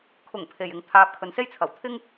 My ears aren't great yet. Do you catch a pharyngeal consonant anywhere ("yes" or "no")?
no